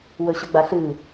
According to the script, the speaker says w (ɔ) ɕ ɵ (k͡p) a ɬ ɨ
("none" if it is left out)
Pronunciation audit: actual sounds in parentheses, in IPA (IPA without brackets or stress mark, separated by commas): ɵ, ɡ͡b